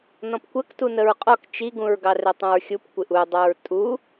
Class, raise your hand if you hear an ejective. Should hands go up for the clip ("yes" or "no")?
yes